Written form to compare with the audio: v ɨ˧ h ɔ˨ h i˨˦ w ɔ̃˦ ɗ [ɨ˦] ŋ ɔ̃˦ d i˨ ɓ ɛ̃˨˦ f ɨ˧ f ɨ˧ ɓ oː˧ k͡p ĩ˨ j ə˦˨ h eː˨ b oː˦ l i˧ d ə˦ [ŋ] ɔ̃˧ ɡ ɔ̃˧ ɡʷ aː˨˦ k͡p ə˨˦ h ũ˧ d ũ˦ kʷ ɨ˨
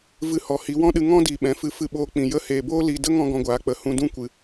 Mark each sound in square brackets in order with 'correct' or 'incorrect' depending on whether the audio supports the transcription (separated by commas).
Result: incorrect, correct